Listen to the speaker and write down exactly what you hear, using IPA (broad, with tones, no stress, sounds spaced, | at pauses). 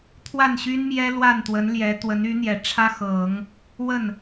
t̪ʰ w a˥˩ n ɕ y˥ n m j ɛ˥ l w a˥˩ n t̪ w ə˧˥ n l j ɛ˧˥ t̪ w ə˧˥ n y˧˥ n̪ j ɛ˨˩ ʈ͡ʂʰ ä˥ x ɤ˨˩˦ ŋ | w ə˥˩ n